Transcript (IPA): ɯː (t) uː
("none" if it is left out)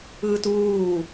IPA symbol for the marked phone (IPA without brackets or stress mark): t